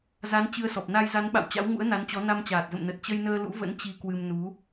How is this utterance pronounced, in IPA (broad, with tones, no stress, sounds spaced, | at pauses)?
z a˨˦ n t͡ɕ ɨ˧ ə̯ s ɔ˨˩ p̚ n a˧ j z a˨˦ n ɓ a̰˧˨ w t͡ɕ a̰˧˥ w ŋ ṵ˧˥ ə̯ n a˨˦ n t͡ɕ ɔ˨˦ n a˧ m t͡ɕ aː˨˩ t̚ z ə̰˧˨ m n ə˨˩ t̚ t͡ɕ ə˧ j n əː˧ l ṵ˧˥ v ə̰˧˥ n t͡ɕ i˧ k w ɨ˧ m n u˨˦